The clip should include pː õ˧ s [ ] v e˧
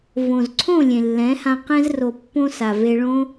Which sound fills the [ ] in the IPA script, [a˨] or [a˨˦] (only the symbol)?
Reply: a˨